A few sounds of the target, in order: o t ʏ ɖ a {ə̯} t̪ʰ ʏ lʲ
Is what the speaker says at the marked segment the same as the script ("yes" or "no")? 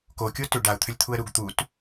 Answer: no